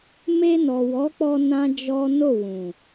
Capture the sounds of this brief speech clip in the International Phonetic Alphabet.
m e˧ n ɔ˨ w ɔ˨˦ k͡p ɔ˧ n ã˦ d͡ʒ ɔ˦ n o˦˨ w ũ˨

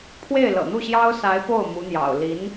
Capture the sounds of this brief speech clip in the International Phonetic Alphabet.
pʰ w e˥˩ ɪ̯ l ɤ̰˨˩ n̪ u˥˩ ɕ j ɑ˥ ʊ̯ s a˧˥ ɪ̯ p o˥˩ ʊ̯ m u˧˥ n̪ j ɑ̰˨˩ ʊ̯ l i˧˥ n

